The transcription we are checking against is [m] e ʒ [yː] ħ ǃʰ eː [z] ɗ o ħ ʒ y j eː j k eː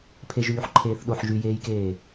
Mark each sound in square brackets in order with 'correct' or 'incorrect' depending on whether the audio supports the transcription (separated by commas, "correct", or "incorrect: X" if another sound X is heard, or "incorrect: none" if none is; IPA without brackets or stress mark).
incorrect: pʰ, correct, incorrect: θ